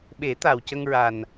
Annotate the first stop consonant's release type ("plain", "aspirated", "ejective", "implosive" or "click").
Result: implosive